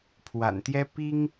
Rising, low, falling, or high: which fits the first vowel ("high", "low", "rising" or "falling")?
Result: low